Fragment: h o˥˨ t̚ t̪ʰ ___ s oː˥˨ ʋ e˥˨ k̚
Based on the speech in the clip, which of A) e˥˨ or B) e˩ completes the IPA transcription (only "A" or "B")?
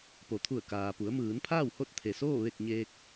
B